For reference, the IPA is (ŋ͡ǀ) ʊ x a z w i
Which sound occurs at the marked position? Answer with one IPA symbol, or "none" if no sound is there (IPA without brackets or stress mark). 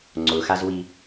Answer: ŋ͡ǀ